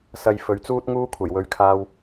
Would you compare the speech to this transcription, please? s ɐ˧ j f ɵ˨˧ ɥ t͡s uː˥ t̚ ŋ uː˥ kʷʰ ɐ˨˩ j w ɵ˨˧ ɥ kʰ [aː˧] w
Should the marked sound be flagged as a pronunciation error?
no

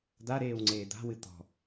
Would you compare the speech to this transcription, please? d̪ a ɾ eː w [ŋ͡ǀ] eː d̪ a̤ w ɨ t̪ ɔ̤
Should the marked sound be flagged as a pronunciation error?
no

